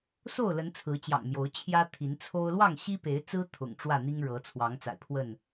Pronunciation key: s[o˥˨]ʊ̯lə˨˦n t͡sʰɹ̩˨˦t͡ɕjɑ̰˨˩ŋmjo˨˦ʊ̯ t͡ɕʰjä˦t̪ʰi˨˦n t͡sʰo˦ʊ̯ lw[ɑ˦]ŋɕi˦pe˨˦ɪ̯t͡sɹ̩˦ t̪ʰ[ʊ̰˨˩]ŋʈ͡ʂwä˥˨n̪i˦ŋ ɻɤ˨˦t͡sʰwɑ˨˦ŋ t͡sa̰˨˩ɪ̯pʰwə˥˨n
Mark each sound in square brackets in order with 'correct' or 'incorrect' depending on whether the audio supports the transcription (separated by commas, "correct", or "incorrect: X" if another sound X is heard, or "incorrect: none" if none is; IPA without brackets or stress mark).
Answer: correct, incorrect: ɑ˥˨, correct